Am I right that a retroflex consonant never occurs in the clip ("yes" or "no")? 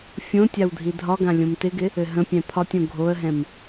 yes